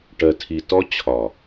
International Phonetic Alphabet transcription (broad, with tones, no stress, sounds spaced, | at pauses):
ʈ ɜ˨ tʰ i˨ t ɔ˦ t͡ɕʰ ɒ˨